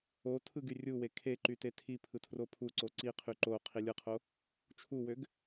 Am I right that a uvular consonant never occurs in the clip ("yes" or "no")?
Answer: no